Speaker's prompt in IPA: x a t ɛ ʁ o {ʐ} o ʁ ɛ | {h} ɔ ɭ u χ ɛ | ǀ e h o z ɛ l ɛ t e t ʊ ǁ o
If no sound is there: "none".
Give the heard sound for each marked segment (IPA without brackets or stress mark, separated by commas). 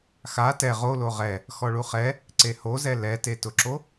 l, x